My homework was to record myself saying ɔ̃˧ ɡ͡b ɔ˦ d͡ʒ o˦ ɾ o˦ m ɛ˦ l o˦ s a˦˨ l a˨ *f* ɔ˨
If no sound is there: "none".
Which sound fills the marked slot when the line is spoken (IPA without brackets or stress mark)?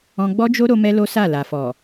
f